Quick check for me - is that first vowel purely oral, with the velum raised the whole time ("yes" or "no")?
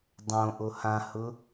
no